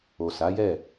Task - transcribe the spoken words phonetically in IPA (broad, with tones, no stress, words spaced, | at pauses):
o˨sa˨˦jɛ˦˨